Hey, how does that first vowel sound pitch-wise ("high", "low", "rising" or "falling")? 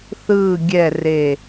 low